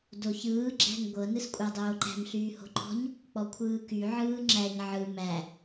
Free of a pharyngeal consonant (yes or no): no